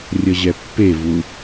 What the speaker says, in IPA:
rʲ ʌ ʑ ɛ pː e v u

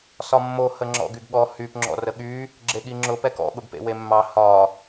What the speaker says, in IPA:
s ɒ mː o h ə ŋ͡ǁ ɔ̰ ɡ y ɡ ɠ ɔ h y p ŋ͡ǁ ɔ̰ r ə ɠ y | ɡ͡ǁ e ɠ i ŋ͡ǁ ʊ p ɛ k ɔ̰ ɠ ʊ ɡ p ḛ w e mː ɑ h ɒ

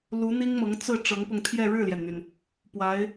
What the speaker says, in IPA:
l u˧˥ n̪ i˥ ŋ m ɤ˧˥ ŋ t͡s ɹ̩˥˩ ʈ͡ʂ ɤ˧˥ ŋ p ʊ˧ ŋ t̪ʰ j ɛ˥˧ ɻ ɻ̩˥˩ l j ɛ˩ n n̪ y˩ n | p w a˧˥ ɪ̯

